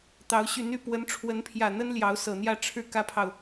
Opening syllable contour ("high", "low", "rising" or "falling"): rising